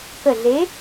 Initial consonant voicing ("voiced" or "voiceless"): voiceless